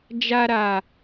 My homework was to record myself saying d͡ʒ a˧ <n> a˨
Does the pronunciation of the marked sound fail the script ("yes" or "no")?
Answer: yes